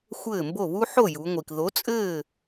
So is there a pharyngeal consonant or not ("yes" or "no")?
yes